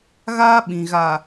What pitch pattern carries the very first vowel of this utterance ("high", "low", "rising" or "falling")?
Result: high